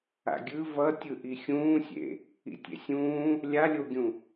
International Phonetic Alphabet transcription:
a̰ɡʲɯ vʌ tʲɯʔixʲũːsʲḛ | ḭtʲḛsʲũː | lʲalʲoɡʲũ

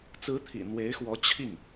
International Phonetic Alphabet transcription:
t͡sɹ̩˧˥t̪ʰḭ˨˩ n̪we˧˥ɪ̯xwɔ˧˥ t͡ɕʰi˥˩ŋ

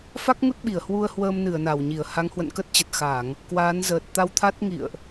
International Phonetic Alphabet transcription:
fa˦˥k̚ŋu˦˥t̚ ɓi˧˩ə̯hwu˧ə̯hwəː˧m nɨ˧˩ə̯ na˧˩wɲi˧˩ə̯ ha˨˦ŋhwə̰˧˨nkə˦˥t̚t͡ɕə˨˩t̚ xa˧˩˨ŋ | kwaː˨˦nzəː˨˩t̚ t̪a˧wt̪ʰa˦˥t̚ ŋḭ˧˨ə̯ʔ

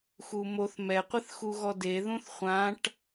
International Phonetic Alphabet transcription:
xumoθ mɛqʷɪθxuɣɔ deðũθ χʷãʈ

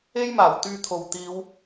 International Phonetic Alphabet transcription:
e˥jmaː˨˩w t̪yː˧t̪ʰo˨w t̪iː˨˧w

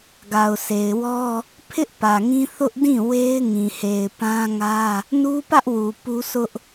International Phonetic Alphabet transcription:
ɡa˨ʊ̯se˨ɪ̯wɔ˦ | pʰɪ˦ʔ pä˨ŋĩ˦ θʊ˦ʔ dĩ˦˨we˦ɪ̯ ŋĩ˨he˨ɪ̯pã˦ŋä˦ | nu˦pä˦ʔwu˨ pu˦sʊ˦ʔ

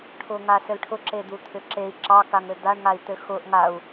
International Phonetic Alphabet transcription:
ʈʰʊŋasɘlʈʰʊ ǁed̪ut̪ʰʏǁei̯ ǁɑ kaŋɘd̪aɳ ŋai̯t̪ɘxʊʔ ŋau̯

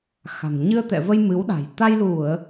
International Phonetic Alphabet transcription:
xa̤˨˩ŋ ɲɨ˧ə̯t̪ɛ̰˧˨və˧j mɨ˨˦wɗa̤˨˩j t̪a˧jlu˧˩˨ə̯

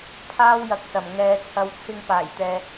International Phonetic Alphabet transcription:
pʰaː˥wjɐ˨k̚sɐ˨˩m ŋɛː˨˧ t͡sʰɐ˨wt͡sʰɪ˧ŋpaː˨˩jt̪ɛː˨

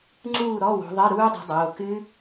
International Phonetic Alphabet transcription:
ŋ͡ǀuː˥˨ɾɔ˧˥˧wo̤˨˦ ðˤɜ˧˥˧ɾuː˦˥dˤṳ˨˦dˤoː˩˧˩ kɨ˦˥

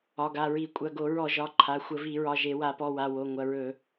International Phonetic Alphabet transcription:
ɒ˩˧˩ɡa˩˧˩ɹi˧˩˧ kʷʼɐ˩˧˩ɡo˧˩˧ɹɔ˧˩˧ ʒɒ˩˧˩ǃʰa˩˧˩ xʷə˧˩˧vi˧˩˧ɹɒ˩˧˩ ʒe˧˩˧wa˧˩˧pɔ˩˧˩wa˩˧˩ wo˩˧˩ ŋʷɐ˩˧˩ɹɵ˧˩˧

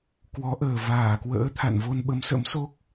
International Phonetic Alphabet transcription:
kwɔ˨˦ʔəː˨˩ vaː˧˩kwə̰ː˧˥ t̪ʰa̰˧˨nvo˧n ɓə˨˦msə̰˧˥mso˦˥k̚

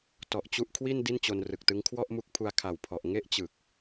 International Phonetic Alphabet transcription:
tɔ˨˩ʔt͡ɕu˦˥ʔkʰwi˥˩n di˥˩nt͡ɕo˧nrɯ˨˩k̚tɯ˦˥ŋ kʰwɔ˥˩ʔmu˦˥k̚pʰu˧a̯ kʰa˨˩wpʰɔ˨˩ʔ ŋe˥˩ʔt͡ɕɯ˨˩k̚

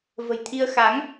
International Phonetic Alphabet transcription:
və̤˨˩jt̪ʰi˧ə̯ xa˨˦ŋ

